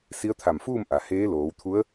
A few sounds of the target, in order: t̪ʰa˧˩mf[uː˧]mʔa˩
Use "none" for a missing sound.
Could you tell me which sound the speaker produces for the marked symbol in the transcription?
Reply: uː˥˨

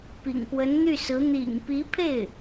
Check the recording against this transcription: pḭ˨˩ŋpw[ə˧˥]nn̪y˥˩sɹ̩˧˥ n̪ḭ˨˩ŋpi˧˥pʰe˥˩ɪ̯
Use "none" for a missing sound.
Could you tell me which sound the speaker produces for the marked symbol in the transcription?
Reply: ə˧˥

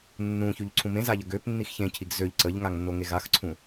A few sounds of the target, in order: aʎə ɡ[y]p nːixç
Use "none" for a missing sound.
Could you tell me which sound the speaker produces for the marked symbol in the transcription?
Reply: ø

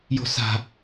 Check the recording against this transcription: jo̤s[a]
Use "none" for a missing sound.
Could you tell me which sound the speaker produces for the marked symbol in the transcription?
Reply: a̤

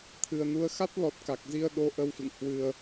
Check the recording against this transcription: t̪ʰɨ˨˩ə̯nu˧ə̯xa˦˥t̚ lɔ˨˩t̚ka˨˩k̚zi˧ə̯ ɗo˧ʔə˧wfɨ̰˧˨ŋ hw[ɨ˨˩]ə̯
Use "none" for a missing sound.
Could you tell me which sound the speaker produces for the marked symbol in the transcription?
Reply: ɨ˧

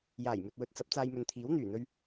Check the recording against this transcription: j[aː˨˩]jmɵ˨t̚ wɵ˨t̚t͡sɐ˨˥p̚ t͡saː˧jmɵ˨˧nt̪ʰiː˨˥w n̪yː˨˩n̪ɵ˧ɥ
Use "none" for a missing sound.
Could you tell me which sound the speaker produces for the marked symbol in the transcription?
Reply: aː˨˩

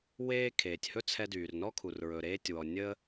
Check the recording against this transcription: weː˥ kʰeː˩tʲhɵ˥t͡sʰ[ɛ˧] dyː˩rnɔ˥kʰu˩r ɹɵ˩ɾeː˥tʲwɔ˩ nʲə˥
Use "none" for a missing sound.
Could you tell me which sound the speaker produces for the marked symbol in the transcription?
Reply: ɛ˧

